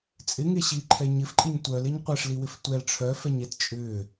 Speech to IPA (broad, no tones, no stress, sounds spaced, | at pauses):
t͡sʼ ɪ ŋ e ɕ i ǃʰ ɛ ɲ ɪ f ǃʼ i ɲ tʷ œ l e ɲ qʷ ɛ ʂ l i w ɪ f tʷ ɛ l ʈ͡ʂʰ œ f ɛ ɲ ɛ t t͡ʃʼ ʏ